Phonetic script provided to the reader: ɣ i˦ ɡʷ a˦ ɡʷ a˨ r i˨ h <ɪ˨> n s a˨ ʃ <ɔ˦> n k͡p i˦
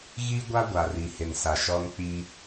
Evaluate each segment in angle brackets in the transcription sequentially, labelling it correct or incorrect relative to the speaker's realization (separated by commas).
correct, correct